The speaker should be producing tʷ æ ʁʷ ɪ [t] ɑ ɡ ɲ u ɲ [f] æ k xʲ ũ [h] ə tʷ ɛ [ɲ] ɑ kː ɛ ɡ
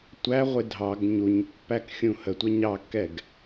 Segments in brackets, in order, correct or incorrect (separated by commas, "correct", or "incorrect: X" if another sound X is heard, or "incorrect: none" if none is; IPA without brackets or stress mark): incorrect: dʱ, incorrect: pː, correct, correct